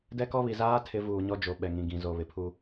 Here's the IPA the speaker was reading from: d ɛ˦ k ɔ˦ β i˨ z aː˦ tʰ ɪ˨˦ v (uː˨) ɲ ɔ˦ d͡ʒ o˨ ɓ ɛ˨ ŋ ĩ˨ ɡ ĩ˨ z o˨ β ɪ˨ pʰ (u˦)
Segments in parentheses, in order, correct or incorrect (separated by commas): correct, correct